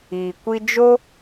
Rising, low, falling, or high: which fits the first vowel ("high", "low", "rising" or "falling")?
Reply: low